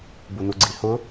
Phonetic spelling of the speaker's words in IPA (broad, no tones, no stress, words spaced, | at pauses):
bunuɡ͡ǀihʊ